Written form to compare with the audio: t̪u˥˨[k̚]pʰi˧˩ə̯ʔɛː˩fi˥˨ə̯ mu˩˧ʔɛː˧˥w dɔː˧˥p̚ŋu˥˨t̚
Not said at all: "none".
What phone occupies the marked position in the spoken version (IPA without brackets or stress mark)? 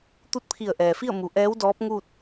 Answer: t̚